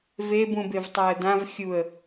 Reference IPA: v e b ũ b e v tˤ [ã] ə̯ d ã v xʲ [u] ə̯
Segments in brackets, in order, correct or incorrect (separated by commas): incorrect, correct